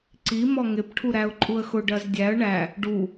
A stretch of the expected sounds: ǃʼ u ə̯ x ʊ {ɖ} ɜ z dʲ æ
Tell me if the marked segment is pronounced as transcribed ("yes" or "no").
yes